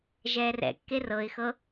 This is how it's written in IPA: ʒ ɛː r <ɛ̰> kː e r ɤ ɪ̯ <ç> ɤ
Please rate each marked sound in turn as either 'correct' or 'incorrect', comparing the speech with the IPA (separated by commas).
correct, incorrect